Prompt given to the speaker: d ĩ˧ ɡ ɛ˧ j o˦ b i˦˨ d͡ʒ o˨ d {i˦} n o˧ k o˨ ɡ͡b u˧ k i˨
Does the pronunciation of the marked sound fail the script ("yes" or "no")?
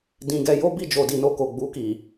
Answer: yes